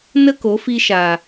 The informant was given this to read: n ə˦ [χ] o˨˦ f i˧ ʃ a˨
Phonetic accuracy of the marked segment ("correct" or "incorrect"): incorrect